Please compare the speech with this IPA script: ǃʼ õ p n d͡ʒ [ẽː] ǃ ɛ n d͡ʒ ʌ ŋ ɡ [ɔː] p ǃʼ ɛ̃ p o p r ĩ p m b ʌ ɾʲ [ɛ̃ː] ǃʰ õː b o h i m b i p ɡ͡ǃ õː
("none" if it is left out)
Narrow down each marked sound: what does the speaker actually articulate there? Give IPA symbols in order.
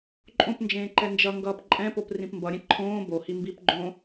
ẽː, ʌː, ɛ̃

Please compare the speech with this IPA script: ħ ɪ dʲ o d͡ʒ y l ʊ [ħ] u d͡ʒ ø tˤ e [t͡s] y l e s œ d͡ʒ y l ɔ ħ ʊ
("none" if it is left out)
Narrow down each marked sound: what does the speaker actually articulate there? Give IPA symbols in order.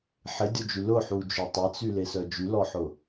ħ, t͡s

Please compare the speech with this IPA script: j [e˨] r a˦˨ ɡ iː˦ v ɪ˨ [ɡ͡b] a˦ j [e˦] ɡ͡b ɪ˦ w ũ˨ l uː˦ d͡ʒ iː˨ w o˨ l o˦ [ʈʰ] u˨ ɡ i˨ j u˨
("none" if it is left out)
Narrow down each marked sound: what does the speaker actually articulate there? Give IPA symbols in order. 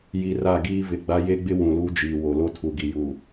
i˨, ɡ͡b, e˦, tʰ

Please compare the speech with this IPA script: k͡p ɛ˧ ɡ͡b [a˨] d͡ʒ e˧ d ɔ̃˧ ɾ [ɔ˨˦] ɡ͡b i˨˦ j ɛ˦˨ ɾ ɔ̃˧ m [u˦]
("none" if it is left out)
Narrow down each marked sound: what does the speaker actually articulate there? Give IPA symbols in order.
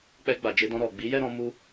a˨, ɔ˨, u˧

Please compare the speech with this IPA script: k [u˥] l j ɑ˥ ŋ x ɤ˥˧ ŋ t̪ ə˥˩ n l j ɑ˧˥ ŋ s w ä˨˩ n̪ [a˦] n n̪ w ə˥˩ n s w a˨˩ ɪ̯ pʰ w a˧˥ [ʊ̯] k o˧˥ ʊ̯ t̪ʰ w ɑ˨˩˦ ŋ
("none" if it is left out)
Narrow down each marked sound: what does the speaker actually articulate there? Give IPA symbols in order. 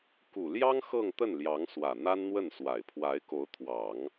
u˨˩, a˥, ɪ̯

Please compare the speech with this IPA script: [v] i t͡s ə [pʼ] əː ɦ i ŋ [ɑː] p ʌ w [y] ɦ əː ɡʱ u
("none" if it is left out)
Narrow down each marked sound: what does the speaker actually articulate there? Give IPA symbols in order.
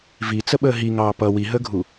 v, ɓ, ɑː, i

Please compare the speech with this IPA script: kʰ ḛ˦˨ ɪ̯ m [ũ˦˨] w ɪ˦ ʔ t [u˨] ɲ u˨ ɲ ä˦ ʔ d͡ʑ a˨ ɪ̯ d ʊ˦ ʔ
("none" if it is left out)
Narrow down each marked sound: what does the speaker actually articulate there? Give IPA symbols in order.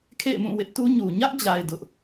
ũ˦˨, u˦

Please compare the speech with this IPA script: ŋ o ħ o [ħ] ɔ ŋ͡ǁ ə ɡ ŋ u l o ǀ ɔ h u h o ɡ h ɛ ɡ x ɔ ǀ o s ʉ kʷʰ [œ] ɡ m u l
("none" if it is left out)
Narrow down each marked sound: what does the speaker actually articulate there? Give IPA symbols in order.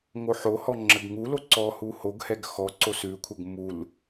h, ə

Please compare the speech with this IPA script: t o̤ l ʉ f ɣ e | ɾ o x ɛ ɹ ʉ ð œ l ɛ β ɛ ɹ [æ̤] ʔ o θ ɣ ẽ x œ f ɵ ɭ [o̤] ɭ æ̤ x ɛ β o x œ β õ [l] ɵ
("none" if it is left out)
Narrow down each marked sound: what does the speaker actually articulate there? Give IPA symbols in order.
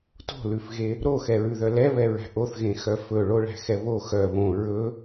æ̤, o, ɹ

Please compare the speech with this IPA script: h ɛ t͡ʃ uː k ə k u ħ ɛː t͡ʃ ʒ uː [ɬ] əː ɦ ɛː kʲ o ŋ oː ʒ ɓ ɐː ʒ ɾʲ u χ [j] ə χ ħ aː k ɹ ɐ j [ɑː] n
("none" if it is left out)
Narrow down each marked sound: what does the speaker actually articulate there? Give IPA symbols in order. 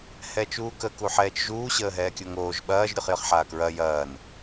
ɕ, j, ɐː

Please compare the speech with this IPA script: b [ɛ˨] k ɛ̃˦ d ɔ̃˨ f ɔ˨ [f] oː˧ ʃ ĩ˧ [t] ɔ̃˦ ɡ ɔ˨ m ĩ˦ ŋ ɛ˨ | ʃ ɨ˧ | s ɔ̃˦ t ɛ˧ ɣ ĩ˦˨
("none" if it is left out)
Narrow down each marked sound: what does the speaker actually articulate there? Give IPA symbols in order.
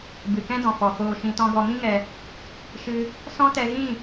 ɨ˨, f, t

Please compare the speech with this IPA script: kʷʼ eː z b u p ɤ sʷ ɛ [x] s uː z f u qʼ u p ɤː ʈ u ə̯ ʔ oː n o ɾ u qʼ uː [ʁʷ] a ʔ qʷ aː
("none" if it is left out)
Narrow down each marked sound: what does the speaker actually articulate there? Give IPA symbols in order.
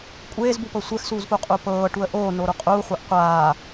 x, χʷ

